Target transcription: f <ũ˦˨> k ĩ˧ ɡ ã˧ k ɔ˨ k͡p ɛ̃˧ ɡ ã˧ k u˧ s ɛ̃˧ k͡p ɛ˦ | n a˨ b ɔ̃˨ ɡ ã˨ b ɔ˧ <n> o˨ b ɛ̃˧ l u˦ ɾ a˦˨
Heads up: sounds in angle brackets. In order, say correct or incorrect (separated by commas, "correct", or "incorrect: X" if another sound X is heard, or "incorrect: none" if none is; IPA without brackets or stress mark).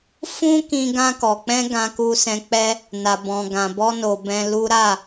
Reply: incorrect: ũ˦, correct